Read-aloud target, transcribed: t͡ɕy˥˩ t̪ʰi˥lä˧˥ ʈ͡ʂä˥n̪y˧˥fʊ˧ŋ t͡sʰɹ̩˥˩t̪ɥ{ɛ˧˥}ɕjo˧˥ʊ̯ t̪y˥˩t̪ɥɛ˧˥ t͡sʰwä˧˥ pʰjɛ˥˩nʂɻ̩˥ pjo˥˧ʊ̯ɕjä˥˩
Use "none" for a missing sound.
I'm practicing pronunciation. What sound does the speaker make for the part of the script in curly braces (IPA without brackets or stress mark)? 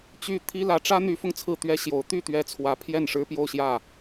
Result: ɛ˥